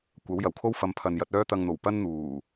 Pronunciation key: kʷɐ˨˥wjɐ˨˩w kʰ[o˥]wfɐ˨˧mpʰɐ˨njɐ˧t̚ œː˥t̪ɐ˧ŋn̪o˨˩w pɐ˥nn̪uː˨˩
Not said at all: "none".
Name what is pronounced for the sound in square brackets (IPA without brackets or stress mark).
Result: o˥